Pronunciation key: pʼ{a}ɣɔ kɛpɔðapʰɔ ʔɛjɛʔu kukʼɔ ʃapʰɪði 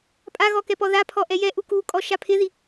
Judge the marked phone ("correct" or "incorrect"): correct